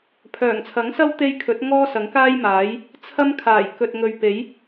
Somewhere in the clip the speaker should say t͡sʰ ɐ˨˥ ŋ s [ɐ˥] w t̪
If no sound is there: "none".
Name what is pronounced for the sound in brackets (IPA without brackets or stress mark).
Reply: ɐ˥